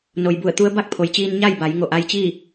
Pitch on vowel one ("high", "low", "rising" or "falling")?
low